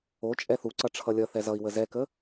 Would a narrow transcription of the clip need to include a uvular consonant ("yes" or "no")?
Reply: no